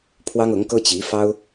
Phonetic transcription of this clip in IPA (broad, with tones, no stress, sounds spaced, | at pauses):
pʰ w ɑ˥ ŋ ɤ˧˥ ŋ k ɤ˥ t͡ɕ i˧˥ f ɑ˥ ʊ̯